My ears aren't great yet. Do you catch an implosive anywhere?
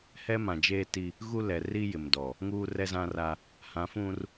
no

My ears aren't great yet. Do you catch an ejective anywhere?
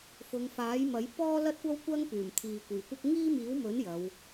no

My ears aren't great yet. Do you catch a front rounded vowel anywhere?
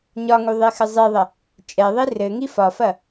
no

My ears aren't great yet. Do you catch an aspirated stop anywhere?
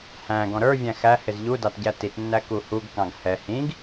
no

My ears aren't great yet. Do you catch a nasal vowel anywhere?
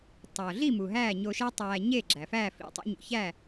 no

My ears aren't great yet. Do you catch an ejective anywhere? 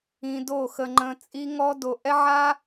yes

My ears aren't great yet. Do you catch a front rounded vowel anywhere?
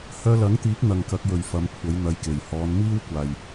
yes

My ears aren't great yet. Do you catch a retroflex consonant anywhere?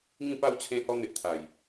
no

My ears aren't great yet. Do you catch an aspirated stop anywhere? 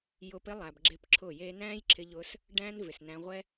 yes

